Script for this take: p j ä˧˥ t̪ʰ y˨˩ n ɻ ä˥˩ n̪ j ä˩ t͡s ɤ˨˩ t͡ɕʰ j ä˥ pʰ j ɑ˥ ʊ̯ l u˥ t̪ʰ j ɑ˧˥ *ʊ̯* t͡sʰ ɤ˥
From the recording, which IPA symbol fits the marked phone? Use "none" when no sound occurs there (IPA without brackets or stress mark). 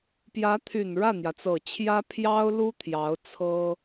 ʊ̯